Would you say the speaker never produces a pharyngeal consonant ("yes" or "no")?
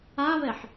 no